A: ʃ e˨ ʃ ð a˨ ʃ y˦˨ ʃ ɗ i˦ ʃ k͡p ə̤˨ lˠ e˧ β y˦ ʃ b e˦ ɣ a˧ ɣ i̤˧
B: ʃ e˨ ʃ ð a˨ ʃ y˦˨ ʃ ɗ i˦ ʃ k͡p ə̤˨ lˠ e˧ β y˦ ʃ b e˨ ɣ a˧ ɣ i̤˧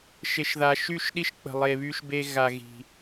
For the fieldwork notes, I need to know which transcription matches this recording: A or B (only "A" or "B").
A